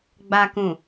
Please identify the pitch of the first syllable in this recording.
low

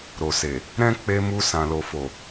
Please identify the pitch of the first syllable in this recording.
low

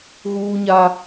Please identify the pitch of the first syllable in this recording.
high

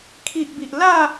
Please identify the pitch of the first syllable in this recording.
low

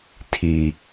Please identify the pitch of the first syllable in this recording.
low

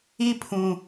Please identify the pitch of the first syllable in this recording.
high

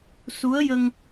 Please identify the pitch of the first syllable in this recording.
rising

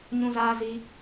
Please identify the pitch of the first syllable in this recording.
high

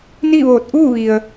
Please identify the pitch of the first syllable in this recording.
falling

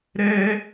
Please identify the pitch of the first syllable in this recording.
high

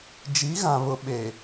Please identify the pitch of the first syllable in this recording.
rising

